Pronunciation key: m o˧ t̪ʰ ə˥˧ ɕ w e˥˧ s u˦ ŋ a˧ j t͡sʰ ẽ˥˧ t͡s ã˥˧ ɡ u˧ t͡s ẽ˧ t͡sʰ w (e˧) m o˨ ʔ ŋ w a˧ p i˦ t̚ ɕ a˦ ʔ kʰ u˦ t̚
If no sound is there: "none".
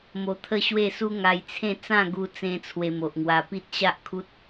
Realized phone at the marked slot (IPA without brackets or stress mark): e˧